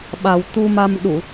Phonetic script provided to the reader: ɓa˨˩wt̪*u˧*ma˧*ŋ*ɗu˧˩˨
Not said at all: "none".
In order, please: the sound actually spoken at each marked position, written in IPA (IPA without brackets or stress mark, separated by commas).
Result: u˧, m